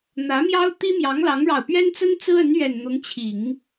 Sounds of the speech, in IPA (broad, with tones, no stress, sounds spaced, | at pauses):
n̪ ä˧˥ m j ɑ˥ ʊ̯ t̪ i˥ m j ɑ˧˥ ŋ l ɑ˧˥ ŋ ɻ ɑ˨˩ ʊ̯ p ɥ ɛ˥ n t͡s ə˥ n t͡s ɹ̩˥ ə˧˥ n ɥ ɛ˨˩ n n̪ ʊ˧˥ ŋ t͡ɕʰ i˨˩˦ ŋ